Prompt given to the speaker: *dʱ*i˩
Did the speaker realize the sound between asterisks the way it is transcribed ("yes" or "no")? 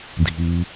yes